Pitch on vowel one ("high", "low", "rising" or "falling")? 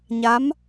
rising